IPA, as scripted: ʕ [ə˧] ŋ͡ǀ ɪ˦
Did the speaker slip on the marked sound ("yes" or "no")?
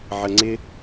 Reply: no